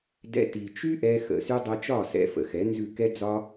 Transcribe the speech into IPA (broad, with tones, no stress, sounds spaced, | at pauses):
d ɛ̰˧ t i˨ t͡ʃ y˦ ʔ ɛ˧ x ə̰˨ s y˦ dˤ ɛ˧ t͡ʃ ɒ˦˨ s ɛ̰˧ f ə̰˨ x ɛ˨˦ n z ʉ˦˨ k ɛ˦ d͡z ɒ˦